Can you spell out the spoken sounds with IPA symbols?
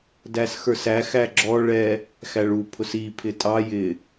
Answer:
dæsxə˞sæ xæɡ͡ǁɔ ɭɛ | xæɭu pʰʊsi pʰɪtʼɑ jɪ

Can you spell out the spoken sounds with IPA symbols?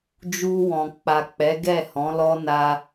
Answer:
d͡ʒu˧wɔ̃˨k͡pa˨k͡pɛ˨˦ ɡɛ˦˨hɔ̃˨˦lɔ˦ na˧

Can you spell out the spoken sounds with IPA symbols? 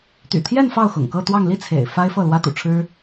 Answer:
t̪y̰˨˩t̪ʰjɛ˥˧n fɑ˥˩ʊ̯xʊ̰˨˩ŋkɤ˥˧ t̪wɑ˥˧ŋ li˥˩ t͡sʰḛ˨˩ɪ̯ fa˥ɪ̯fɤ˥˩ lwä˥t̪ṵ˨˩ʈ͡ʂʰɻ̩˥

